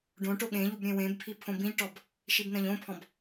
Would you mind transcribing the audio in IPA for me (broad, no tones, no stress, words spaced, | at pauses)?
ɖõʈo ɠẽʎub ɾʲẽwẽbpʰi pʰõbĩʎʈɔb | ʃibnɐ̃ʎõpʰɔ̃b